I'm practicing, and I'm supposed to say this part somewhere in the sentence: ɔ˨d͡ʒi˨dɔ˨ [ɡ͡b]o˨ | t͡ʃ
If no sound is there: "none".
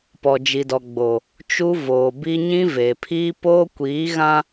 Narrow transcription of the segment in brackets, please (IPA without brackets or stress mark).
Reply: ɡ͡b